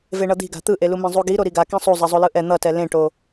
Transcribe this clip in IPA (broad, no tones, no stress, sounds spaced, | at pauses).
v e ɳ ʌ d̪ i̤ ɡ a̤ t̪ ɯ ʔ e l u m ẽ zˤ u ɡ i ɾ o ɾ i ɡ a k ẽ sˤ u zˤ ɛ zˤ o l ɯ ʔ ɛ n̪ ʌ t ɛ l ẽ ʈ o